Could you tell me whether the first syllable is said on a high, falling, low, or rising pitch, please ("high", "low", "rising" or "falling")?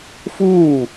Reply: falling